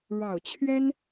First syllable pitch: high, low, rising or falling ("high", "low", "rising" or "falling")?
low